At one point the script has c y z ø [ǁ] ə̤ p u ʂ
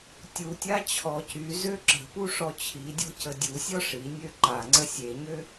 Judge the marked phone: correct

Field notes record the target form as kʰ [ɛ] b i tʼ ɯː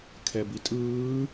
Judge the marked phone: correct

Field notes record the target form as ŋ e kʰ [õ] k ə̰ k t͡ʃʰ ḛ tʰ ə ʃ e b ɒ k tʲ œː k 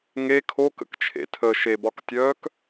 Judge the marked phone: incorrect: o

